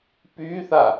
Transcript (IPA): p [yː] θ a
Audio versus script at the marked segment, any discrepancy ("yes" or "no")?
no